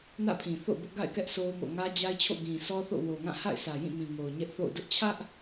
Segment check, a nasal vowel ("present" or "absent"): present